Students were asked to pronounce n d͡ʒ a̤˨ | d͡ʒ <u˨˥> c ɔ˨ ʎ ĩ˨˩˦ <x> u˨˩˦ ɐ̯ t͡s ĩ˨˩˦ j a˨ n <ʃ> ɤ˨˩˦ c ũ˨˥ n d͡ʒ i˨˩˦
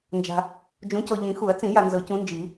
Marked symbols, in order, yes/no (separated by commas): no, yes, no